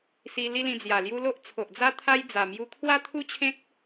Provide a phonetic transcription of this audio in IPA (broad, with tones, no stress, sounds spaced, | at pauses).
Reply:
s i˧ l i˦ l ĩ˧ d͡z j a˨˩ l j u˦ l o˦ ʔ t͡sʰ o˨ ʔ d͡z a˦ t̪ʰ a˦ j d͡z a˨˩ m j u˧ kʰ w a˥˧ t̪ʰ u˥˧ t͡ɕʰ ẽ˦ k̚